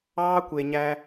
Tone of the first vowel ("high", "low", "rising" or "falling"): high